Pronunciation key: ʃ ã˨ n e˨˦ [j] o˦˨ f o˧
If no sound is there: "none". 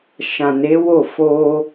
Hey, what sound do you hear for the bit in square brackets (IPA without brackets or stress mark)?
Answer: w